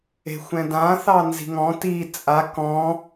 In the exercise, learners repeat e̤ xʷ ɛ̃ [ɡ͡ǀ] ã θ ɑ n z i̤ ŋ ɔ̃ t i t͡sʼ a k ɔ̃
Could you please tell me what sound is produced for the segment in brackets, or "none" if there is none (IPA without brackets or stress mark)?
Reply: d